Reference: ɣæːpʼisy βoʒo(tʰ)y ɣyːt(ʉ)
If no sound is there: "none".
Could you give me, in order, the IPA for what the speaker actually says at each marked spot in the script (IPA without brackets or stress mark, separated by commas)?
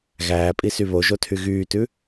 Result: tʰ, ʉ